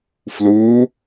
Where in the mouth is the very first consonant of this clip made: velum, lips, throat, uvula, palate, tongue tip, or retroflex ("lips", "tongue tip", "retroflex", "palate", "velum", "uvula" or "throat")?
lips